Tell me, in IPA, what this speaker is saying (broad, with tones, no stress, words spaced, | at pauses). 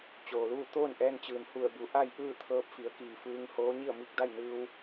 t͡ɕoː˩luː˥˨ t̪oː˥˨nʔɛː˧nt͡ɕɯː˩n hu˧˩ə̯bu˩˧ ʔa˥˨j ʔɯː˥˨t̪ʰɤː˧˥p̚fi˩˧ə̯kiː˩ fɯː˧ŋhoː˧˥ ɲi˥˨ə̯mi˥˨k̚ da˥˨jnɯː˧w